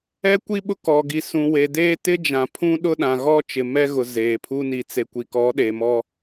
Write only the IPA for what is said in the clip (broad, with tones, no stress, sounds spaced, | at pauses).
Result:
ɛ˦ kʷ i˦ ɓ ʊ˦ k ɔ˨ ɡ i˨ s ũ˨ w e˨ d eː˦ t ɪ˦ d͡ʒ ã˨ pʰ ũ˦ ɗ ʊ˦ ɗ ã˨ ɣ ɔ˦ t͡ʃ ɪ˨ m ɛ˦ ɣ ʊ˨ z eː˨ pʰ u˦ n i˨ t͡s e˨ kʷ i˨ k ɔ˨˦ ɗ e˨ m ɔ˦